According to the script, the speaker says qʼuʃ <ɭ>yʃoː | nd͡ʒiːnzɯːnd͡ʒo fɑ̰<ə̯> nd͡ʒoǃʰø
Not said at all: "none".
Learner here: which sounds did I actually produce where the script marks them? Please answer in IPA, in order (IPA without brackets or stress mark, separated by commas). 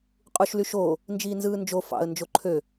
l, ə̯